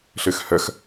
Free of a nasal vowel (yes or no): yes